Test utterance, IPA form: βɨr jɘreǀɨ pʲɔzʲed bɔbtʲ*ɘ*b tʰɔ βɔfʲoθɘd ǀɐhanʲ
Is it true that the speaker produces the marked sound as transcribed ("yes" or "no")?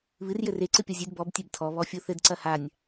no